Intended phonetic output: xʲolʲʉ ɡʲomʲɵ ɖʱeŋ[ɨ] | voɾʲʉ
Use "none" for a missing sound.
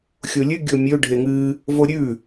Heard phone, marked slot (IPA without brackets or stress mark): ɨ